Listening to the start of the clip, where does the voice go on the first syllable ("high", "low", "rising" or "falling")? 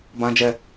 low